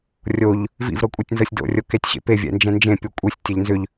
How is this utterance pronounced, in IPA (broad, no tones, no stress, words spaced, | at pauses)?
rʲoʎ | vḭvɾɤ kʷʼetʲnzɤsʲdo̰rʲo ketʲɕḛpevʲɛ̰ nd͡ʒɛ̃nd͡ʒẽpʲo kʷʼisʲtʲɛʎ nzʏʎ